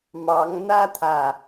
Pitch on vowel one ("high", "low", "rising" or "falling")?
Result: rising